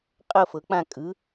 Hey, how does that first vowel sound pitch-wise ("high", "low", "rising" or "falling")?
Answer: falling